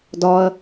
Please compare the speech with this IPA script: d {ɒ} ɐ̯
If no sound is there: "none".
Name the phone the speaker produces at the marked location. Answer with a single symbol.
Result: ɒ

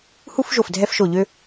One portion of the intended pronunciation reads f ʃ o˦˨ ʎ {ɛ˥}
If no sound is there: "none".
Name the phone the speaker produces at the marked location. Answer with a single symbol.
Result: ø˥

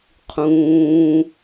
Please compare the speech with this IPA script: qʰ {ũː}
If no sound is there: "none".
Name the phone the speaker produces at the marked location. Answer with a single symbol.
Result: ũː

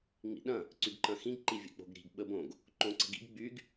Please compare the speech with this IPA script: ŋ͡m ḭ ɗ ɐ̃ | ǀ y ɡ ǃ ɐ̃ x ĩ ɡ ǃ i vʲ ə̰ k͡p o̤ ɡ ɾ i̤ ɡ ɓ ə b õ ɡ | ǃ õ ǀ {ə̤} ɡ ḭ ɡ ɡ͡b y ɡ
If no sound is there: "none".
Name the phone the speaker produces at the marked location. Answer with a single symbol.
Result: ə̤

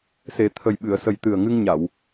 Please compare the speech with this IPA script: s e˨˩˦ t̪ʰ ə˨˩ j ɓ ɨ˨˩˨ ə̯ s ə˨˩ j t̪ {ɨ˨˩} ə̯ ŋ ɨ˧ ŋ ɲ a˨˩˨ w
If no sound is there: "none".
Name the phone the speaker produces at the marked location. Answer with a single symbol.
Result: ɨ˨˩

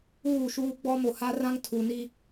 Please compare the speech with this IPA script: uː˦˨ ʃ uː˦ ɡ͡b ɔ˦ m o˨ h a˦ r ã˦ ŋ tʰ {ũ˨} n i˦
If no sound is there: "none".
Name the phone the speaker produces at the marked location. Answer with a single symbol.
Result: u˨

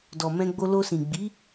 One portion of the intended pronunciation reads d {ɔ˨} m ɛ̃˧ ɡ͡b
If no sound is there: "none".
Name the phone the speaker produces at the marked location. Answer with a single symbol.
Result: ɔ˨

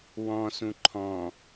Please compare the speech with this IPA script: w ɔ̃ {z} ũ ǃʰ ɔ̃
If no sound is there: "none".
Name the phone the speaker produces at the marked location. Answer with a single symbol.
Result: s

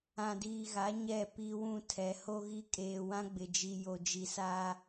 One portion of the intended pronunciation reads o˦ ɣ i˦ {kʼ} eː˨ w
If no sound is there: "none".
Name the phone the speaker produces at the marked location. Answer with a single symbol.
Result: kʼ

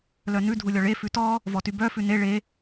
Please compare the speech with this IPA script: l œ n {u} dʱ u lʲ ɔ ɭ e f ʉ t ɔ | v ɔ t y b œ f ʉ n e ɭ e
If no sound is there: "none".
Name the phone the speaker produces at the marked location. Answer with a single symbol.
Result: ʉ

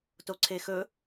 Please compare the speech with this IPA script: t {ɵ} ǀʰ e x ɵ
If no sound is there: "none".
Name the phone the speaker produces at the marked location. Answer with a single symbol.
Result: o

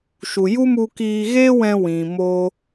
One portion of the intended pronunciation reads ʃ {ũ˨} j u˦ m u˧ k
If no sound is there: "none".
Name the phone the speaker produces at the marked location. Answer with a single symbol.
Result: u˨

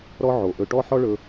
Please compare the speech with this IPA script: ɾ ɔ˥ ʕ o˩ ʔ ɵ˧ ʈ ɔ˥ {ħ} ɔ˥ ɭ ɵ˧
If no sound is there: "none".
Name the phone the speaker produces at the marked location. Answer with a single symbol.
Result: ħ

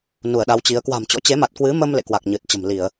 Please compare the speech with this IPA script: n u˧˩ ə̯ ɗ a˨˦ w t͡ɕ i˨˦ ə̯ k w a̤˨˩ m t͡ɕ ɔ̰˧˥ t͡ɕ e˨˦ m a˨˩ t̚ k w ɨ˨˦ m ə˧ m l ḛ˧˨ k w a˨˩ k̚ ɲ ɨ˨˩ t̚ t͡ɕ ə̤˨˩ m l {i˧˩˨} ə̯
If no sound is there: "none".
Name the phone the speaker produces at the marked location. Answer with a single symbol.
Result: i˧˩˨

